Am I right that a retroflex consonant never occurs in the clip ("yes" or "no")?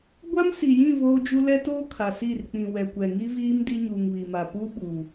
yes